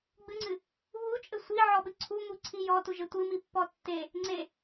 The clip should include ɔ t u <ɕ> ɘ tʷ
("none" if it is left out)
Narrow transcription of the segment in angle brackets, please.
ʒ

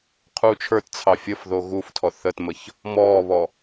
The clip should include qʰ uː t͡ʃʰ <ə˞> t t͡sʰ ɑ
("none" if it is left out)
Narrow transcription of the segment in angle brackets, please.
ə˞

